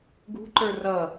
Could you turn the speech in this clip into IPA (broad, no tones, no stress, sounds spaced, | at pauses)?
ɡ ṳ ǃ ə˞ r ʌ